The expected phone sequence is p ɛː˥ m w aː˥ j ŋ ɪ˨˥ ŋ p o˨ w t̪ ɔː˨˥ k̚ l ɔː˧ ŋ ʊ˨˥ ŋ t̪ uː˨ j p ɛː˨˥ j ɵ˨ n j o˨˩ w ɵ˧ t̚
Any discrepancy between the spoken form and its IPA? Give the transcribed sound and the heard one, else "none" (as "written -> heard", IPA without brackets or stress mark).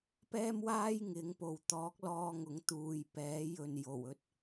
none